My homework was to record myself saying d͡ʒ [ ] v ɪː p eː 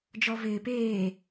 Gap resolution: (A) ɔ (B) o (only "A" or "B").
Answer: A